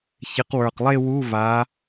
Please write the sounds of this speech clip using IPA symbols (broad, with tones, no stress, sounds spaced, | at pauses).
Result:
ç ɪ˨˦ q w ə˞˨˩ q lˠ e˥˧ w u˧˥˧ v a˨˦